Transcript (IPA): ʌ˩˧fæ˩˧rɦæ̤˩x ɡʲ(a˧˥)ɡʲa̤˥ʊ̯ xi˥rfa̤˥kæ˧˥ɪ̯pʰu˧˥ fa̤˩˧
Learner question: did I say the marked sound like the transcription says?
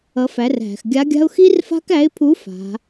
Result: yes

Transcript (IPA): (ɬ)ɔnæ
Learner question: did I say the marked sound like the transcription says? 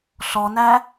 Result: yes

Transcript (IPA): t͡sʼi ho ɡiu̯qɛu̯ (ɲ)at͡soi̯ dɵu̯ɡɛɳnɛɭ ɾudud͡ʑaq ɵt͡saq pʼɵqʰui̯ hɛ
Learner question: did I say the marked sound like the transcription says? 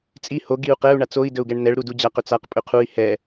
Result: no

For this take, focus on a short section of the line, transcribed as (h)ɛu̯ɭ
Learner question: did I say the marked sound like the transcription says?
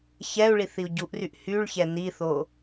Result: no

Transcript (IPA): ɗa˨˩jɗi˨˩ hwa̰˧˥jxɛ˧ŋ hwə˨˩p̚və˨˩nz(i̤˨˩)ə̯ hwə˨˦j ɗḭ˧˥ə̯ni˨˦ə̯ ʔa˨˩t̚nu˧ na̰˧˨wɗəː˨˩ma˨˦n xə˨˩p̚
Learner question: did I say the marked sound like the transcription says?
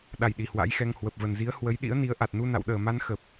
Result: no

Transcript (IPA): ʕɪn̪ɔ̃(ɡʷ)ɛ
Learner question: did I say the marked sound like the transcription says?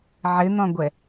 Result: yes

